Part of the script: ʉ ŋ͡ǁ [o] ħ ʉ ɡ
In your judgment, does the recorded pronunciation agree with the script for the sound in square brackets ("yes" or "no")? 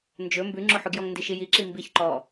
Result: yes